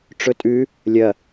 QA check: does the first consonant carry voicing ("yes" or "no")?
no